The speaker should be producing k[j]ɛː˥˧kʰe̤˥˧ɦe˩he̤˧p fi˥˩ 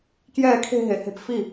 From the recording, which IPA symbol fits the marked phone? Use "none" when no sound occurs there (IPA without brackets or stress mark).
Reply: j